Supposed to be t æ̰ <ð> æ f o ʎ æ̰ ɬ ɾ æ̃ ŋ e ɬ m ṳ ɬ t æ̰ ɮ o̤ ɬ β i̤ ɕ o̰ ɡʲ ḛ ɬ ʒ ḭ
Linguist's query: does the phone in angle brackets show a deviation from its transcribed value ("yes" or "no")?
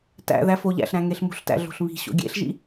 no